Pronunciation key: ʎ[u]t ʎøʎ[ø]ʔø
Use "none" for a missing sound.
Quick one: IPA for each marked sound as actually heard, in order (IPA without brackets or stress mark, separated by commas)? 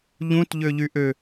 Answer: ũ, y